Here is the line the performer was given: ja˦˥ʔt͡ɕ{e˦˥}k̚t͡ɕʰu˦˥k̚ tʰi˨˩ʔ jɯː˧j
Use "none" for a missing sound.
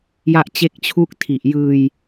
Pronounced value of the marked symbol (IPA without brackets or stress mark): e˦˥